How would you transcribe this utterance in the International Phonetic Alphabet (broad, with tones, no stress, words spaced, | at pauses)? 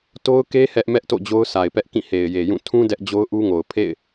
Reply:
to˦ʊ̯ke˦ hɛ˦ʔmɛ˦ʔto̰˦˨ d͡ʑo˦ʊ̯sʰa˨ɪ̯pɛ˦ʔkĩ˦˨ he˨ɪ̯je˨jũ˦˨ tʰũ˦ dɛ˦ʔd͡ʑo˦ʊ̯ʔu˦ŋo˨ʊ̯ pʰḛ˦˨ɪ̯